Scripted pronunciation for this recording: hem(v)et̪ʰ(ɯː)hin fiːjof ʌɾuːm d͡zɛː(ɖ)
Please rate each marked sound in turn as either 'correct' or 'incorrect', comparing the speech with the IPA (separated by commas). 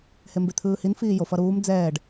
incorrect, correct, correct